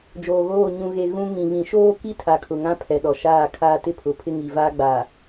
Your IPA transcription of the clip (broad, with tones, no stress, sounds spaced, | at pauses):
d͡ʒ oː˨ ɣ oː˦˨ ɲ ũ˨ ɣ e˨ ɣ ũ˦ ŋ ĩ˨ β ĩ˨ ʃ oː˦ k i˦ tʰ a˨ kʰ ʊ˨ ŋ ã˦ pʰ ɛ˨ ɗ ɔ˨ ʃ aː˦˨ kʰ aː˦ t ɪ˦ pʰ ʊ˨ pʰ ɪ˦ ŋ i˨ v aː˦ ɡ͡b a˨